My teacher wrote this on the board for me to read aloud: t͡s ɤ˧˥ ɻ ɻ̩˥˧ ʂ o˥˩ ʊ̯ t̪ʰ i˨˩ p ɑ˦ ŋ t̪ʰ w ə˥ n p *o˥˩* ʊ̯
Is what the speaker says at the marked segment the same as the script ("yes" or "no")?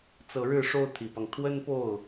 yes